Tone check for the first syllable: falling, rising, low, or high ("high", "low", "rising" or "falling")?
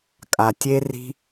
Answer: low